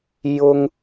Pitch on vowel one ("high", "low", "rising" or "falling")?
high